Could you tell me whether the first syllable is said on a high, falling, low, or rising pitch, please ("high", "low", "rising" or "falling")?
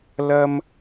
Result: high